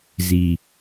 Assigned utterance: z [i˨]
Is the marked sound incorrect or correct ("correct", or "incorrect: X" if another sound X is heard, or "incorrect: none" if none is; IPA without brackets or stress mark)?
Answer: correct